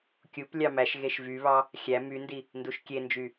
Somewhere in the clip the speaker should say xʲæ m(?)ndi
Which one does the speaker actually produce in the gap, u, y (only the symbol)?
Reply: y